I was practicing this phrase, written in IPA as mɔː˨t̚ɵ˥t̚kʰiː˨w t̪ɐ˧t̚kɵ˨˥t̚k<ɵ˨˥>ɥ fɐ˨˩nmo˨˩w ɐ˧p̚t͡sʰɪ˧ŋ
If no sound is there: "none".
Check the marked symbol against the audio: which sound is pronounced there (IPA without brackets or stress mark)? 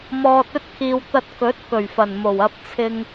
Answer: ɵ˨˩